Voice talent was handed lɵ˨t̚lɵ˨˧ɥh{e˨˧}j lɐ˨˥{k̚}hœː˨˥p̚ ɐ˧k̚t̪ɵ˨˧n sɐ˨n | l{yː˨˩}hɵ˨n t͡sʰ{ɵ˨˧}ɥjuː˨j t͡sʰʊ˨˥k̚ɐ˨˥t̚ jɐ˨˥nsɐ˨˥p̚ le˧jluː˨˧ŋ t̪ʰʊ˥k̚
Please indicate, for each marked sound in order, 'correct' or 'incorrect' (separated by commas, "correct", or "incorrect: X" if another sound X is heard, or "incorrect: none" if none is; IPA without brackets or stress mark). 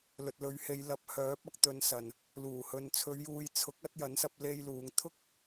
correct, incorrect: p̚, incorrect: uː˨˩, correct